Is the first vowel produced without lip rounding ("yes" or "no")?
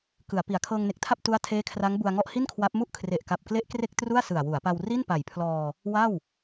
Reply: yes